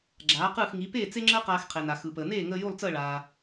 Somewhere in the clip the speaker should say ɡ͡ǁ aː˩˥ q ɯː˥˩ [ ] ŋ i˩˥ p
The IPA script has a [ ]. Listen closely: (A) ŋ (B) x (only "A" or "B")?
B